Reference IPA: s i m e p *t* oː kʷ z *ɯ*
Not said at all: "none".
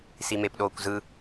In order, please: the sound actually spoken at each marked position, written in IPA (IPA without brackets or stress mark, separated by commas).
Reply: ɗ, ɯ